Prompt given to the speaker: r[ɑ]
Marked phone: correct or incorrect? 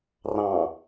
incorrect